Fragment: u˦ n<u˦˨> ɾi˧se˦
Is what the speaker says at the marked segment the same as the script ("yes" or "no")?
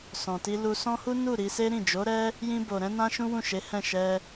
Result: yes